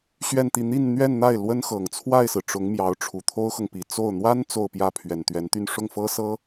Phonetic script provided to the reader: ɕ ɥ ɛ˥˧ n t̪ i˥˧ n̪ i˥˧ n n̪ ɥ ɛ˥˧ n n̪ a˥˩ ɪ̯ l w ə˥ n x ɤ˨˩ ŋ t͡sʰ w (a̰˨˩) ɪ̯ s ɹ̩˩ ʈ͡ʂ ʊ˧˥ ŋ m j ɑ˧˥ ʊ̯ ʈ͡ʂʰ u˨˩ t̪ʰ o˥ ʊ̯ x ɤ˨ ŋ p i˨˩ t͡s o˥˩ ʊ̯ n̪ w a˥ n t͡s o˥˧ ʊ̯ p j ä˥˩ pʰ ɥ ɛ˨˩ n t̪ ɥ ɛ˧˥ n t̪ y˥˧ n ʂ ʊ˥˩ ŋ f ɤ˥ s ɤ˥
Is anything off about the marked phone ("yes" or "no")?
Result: yes